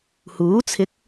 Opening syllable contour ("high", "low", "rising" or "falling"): rising